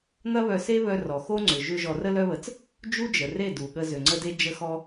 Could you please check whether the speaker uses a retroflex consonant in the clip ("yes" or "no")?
no